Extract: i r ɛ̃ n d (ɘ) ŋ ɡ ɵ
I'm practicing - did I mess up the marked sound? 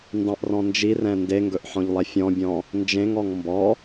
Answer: yes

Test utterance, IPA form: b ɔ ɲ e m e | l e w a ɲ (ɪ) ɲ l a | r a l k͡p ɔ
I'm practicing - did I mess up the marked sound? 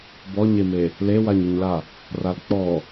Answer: no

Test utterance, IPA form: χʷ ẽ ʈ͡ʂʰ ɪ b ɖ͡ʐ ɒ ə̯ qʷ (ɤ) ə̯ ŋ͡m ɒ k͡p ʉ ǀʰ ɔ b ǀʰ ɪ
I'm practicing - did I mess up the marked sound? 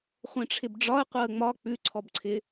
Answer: no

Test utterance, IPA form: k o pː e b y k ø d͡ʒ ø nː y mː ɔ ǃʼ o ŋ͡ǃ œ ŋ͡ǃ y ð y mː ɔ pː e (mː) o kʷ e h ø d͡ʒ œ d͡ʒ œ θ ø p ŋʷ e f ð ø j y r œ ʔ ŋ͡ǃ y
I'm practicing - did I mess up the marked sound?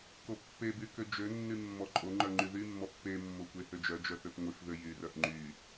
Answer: no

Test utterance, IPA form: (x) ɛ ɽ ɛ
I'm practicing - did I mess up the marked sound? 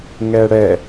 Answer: yes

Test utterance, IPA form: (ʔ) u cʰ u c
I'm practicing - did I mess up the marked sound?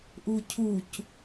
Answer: no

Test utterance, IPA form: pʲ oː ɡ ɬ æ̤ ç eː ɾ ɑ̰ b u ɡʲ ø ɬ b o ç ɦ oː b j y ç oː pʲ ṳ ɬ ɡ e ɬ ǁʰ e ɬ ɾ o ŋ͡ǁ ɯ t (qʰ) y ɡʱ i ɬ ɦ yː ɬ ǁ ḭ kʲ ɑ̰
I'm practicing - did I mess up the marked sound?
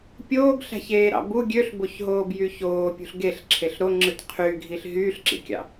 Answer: no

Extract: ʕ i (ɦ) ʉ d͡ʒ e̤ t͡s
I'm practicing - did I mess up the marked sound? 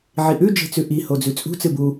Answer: yes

